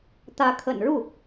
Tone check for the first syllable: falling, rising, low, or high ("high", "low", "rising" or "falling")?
rising